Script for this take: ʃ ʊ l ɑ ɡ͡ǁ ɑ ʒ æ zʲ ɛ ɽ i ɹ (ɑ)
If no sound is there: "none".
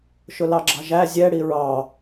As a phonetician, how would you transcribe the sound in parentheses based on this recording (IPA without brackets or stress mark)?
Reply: ɑ